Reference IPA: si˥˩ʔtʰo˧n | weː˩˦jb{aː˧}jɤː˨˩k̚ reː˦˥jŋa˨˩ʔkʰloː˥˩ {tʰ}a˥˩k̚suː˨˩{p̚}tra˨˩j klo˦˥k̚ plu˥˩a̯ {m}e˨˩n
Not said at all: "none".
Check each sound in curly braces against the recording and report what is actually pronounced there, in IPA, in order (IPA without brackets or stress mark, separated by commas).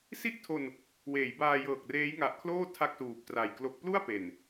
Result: aː˧, tʰ, p̚, p